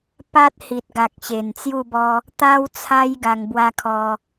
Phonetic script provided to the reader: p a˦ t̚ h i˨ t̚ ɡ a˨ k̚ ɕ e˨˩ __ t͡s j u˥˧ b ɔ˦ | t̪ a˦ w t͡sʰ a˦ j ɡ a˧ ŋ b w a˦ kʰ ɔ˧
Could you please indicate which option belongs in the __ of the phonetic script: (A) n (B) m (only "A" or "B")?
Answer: A